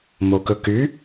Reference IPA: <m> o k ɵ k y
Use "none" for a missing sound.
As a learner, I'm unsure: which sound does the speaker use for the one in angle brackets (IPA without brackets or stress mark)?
m